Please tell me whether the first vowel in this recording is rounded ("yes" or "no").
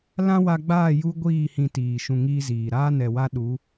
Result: no